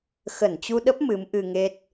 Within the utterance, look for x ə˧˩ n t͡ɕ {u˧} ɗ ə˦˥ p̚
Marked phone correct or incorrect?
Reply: correct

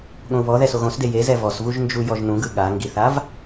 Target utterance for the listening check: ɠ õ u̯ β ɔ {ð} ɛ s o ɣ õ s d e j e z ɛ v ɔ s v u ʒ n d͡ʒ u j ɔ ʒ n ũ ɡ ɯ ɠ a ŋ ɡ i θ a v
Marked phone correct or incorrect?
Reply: correct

